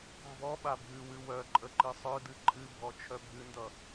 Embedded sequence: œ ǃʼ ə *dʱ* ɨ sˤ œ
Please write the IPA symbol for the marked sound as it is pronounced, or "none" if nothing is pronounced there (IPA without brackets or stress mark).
ǃ